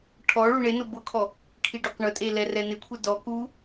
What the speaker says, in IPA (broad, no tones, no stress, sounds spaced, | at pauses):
ʈʰ ɔ ɭ u ɳ e n ʊ b ʊ kʰ ɔ | kʰ i ɖ ʊ q ɳ ʊ tʼ e l ɛ r ɛ n ɪ kʷʰ ɛ d ɔ k u